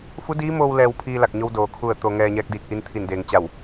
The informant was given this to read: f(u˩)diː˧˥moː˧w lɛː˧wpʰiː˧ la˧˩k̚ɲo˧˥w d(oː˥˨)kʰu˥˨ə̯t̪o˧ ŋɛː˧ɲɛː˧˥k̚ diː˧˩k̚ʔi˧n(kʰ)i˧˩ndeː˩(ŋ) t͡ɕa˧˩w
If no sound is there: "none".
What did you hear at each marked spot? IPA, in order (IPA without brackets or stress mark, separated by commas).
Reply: u˧˥, oː˩˧, t̪ʰ, ŋ